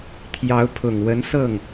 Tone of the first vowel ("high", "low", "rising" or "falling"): rising